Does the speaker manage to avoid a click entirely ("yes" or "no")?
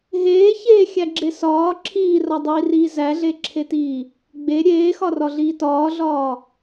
no